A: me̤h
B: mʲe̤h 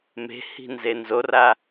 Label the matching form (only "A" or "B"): A